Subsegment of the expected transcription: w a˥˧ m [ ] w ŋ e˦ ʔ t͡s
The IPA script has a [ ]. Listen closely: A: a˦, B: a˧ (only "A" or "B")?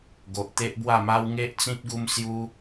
A